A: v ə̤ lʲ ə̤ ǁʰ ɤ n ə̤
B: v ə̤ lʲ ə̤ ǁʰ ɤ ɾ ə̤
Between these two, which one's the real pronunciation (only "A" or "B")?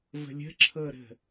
B